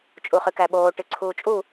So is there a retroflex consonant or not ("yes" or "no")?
yes